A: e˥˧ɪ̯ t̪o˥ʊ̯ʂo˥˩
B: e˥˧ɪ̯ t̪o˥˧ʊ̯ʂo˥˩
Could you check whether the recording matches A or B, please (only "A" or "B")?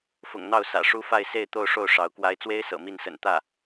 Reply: B